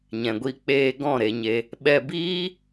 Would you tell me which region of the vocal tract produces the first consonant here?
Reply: palate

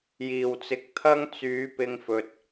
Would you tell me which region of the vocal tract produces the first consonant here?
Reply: palate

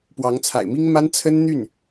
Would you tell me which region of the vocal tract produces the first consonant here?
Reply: lips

